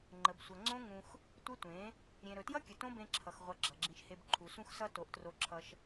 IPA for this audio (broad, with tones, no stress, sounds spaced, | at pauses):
ŋ͡ǃ ə˨ b sʷ ʌ˨ ŋ͡ǀ õ˦ ŋ ũ˧ x | tʷ ə˦ tʷ ẽ˨˦ | ɾʲ ẽ˨ ɾ ɵ˨ t j ʌ˦ kʲ ə˨ t õ˦ b ẽ˧ ǁʰ ʌ˨ x ʁʷ ʌ˧ ɡ͡ǁ ʌ˨ ɡ͡ǁ ĩ˧ ʃ h e˧ b ǃʰ u˨ s ũ˦ x s ʌ˦ t o˨˦ ʔ t r o˧ ǁʰ ʌ˧ ʃ